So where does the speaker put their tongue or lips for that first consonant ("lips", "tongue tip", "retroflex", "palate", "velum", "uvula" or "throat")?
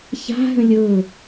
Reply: palate